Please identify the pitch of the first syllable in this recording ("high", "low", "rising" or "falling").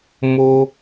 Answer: high